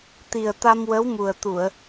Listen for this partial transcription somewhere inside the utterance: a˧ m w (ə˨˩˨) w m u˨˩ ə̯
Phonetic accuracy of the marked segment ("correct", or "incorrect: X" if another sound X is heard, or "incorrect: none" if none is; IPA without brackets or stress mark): incorrect: ə˧˥